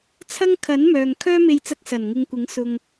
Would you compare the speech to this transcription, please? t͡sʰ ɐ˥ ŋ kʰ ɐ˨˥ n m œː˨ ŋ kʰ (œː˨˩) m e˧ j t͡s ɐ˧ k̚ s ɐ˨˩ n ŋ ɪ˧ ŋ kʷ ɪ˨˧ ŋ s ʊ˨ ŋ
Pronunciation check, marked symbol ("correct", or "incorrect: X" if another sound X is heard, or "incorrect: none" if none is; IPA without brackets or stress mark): incorrect: œː˥